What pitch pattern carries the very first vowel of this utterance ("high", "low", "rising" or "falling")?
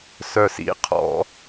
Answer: low